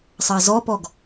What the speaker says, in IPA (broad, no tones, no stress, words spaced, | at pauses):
sˤɑzɔpɔɡ